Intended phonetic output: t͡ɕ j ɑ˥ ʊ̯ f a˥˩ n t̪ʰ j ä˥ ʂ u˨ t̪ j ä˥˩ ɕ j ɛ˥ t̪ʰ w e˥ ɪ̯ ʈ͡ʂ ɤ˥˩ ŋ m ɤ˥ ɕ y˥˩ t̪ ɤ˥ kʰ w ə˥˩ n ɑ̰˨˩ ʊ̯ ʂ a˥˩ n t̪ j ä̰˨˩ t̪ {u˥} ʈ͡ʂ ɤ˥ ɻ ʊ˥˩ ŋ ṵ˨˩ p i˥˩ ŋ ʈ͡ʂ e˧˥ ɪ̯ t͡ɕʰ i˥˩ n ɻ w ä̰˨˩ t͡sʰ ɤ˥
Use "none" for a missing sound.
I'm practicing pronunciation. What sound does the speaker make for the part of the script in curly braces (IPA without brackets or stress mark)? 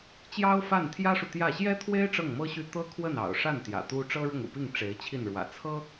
u˥